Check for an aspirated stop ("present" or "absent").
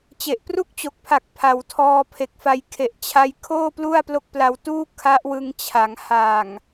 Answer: present